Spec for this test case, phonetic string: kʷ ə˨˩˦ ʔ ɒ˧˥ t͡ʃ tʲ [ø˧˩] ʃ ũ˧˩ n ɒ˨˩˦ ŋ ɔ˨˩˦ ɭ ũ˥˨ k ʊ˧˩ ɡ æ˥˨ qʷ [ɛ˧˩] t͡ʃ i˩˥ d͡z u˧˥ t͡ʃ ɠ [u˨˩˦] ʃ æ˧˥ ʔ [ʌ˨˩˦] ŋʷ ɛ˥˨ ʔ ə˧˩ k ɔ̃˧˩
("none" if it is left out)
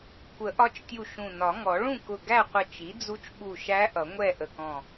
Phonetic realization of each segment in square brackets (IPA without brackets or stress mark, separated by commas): u˧˩, ɪ˧˩, u˧˩, ʌ˨˩˦